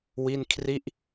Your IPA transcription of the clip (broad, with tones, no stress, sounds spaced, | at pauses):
w i˥˩ n kʰ r i˥˩ ʔ